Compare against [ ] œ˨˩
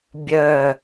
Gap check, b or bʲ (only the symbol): bʲ